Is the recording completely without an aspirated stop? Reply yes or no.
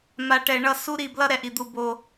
yes